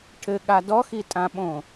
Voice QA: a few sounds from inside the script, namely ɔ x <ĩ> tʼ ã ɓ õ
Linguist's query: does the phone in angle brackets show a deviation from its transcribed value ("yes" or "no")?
yes